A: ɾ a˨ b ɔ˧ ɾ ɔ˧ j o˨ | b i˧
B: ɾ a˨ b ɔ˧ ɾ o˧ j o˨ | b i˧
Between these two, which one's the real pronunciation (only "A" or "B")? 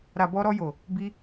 A